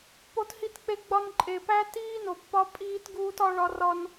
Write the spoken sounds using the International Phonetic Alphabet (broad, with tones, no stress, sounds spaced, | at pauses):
p o˦ t h i˦ t k͡p e˦ ɡ͡b ɒ˦ n ǃʼ e˨ p æ˦ t iː˦ n o˨ pː ɒ˦ pʼ iː˦ t ɡ uː˦ t ɒ˦ ɭ ɒ˦ r ɒ˦ n